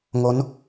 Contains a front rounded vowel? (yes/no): no